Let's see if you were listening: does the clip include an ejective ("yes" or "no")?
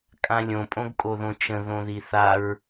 yes